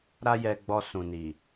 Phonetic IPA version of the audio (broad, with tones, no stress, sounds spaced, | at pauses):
ɾ a˦ j ɛ˧ ɡ͡b ɔ˧ s ũ˨ n i˨